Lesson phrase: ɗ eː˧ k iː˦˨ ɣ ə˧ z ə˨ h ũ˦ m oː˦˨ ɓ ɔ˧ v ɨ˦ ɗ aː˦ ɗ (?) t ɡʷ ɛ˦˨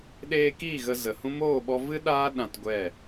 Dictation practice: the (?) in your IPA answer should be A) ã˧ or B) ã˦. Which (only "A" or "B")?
A